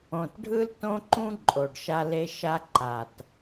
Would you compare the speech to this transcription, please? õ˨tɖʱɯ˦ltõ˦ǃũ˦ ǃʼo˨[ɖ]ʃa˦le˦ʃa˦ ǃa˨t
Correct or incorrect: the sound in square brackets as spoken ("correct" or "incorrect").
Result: correct